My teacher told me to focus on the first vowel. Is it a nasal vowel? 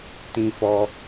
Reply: yes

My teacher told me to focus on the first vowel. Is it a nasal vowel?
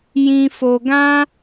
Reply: yes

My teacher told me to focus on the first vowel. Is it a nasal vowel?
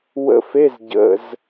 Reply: no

